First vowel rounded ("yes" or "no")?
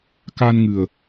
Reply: no